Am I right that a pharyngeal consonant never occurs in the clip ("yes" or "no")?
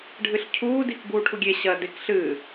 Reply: yes